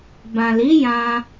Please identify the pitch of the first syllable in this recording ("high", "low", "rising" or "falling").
low